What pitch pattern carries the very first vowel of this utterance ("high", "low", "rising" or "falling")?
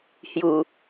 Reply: low